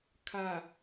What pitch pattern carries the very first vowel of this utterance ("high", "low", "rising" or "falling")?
low